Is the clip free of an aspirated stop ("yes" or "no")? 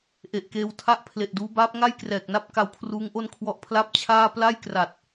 no